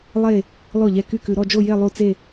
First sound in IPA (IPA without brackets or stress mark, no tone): lˠ